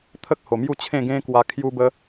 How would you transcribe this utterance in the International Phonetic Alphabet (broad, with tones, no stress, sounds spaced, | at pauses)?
t̪ʰ ə˦ k̚ h o˨˩ m j u˥˧ t͡ɕʰ ẽ˥˧ ɡ ẽ˦ k w a˧ kʰ j u˧ b ə˧